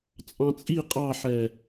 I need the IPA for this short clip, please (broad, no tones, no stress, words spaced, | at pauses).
t͡sʼɑ̃t͡sʼi qʼɑħɛ